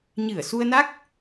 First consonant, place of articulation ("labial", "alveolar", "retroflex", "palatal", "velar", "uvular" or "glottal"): palatal